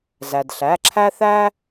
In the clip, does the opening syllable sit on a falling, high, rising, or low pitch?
low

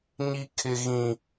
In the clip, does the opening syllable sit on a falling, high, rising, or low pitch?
high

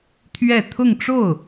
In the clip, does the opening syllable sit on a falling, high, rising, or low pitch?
falling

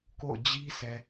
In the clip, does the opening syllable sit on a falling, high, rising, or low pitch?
falling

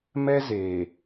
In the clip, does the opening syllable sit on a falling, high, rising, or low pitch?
high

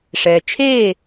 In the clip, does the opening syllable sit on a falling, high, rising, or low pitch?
low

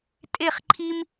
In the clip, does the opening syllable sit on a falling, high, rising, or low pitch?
falling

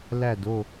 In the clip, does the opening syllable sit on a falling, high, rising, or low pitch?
falling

